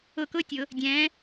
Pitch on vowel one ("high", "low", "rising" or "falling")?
falling